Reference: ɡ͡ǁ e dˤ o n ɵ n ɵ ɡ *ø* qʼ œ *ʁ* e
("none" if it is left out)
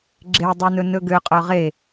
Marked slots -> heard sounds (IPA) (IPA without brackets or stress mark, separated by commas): ø, ʁ